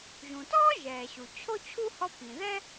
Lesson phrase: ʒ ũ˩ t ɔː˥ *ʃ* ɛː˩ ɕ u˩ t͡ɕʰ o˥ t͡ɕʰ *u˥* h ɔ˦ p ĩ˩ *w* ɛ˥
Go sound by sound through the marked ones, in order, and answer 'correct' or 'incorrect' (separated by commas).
incorrect, correct, incorrect